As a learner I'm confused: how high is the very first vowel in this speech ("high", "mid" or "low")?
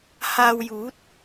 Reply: low